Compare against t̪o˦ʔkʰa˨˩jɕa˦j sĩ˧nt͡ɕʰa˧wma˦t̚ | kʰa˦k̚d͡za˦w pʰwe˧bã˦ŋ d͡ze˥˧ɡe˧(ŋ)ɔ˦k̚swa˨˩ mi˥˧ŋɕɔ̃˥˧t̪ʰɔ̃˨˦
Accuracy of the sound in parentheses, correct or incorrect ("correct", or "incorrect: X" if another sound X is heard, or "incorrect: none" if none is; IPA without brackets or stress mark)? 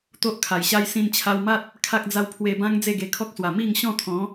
incorrect: kʰ